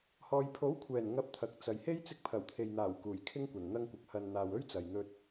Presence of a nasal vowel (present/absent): absent